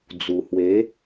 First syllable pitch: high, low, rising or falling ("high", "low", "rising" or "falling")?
low